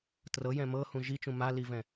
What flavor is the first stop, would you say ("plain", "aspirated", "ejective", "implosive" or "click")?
plain